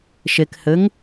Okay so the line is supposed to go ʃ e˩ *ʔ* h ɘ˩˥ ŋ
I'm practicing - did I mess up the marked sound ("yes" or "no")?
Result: yes